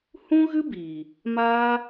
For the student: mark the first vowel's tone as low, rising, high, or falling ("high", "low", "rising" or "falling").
high